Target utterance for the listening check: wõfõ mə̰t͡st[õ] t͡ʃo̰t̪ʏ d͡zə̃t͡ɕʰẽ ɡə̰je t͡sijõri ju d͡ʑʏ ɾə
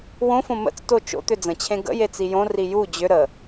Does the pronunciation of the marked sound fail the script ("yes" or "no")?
yes